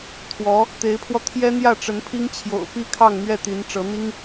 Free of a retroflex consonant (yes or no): no